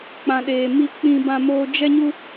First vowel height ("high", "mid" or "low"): low